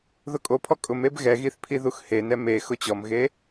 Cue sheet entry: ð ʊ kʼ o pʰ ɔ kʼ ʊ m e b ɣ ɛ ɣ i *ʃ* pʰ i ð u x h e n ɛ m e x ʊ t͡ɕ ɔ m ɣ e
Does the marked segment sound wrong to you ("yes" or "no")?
yes